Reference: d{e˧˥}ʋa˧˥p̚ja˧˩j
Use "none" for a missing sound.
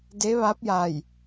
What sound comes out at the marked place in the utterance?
e˧˥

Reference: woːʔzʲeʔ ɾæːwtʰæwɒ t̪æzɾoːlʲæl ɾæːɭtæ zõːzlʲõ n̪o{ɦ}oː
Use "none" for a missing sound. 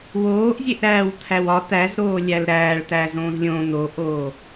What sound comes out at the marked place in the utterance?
ʔ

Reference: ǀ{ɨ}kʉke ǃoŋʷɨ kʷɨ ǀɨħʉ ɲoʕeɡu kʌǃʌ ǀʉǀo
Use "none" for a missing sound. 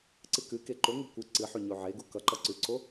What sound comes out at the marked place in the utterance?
ɨ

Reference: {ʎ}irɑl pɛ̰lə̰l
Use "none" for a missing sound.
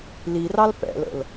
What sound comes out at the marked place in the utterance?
l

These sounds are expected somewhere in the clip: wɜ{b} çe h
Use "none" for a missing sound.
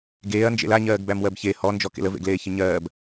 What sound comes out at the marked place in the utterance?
b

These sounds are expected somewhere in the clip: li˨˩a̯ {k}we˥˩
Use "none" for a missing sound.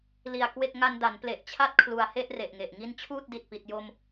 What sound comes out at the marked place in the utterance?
k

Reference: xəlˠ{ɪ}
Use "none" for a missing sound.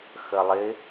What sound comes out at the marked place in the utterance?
ɪ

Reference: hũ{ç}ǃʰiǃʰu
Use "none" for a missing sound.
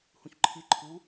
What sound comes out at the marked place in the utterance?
ç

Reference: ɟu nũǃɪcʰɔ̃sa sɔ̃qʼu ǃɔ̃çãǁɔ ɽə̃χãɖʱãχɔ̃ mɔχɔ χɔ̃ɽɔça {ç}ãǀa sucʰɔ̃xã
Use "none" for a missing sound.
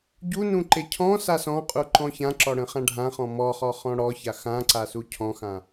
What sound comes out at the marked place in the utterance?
x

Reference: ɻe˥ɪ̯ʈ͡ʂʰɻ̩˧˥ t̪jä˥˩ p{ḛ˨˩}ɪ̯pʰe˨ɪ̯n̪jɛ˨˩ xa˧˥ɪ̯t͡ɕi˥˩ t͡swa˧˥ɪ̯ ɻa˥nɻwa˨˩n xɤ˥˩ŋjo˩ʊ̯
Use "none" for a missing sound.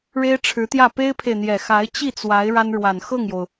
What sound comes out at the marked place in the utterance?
e˥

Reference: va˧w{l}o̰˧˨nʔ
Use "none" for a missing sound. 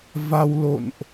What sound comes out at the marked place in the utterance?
l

